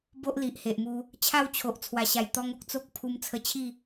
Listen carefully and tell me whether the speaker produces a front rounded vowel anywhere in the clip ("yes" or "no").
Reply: no